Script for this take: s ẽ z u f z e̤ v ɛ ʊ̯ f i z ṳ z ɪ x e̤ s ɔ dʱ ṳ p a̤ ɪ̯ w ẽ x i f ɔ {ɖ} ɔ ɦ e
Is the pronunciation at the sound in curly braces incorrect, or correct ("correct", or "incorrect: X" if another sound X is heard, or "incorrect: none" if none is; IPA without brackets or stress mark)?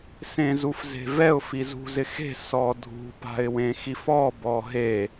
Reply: incorrect: b